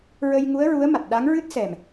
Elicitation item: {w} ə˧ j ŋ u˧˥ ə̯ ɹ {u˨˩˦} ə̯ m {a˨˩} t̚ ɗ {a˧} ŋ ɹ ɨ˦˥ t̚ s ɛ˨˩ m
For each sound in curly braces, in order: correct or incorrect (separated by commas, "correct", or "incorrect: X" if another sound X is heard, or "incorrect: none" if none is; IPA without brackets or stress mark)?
incorrect: ɹ, incorrect: u˧˥, correct, incorrect: a˧˥